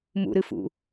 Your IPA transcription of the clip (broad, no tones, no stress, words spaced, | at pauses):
mṵɾɨfṵ